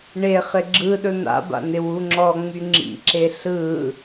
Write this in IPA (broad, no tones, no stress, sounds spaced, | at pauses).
ɳ e χ ɪ ɡ͡ǁ ɯ ɗ ɵ n̪ a̰ b a̰ n ɪ w u ŋ͡ǁ ɔ ŋ͡m y ŋ͡ǁ ḭ ǁ e ɬ ɯ